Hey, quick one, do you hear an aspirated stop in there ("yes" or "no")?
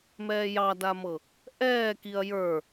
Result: no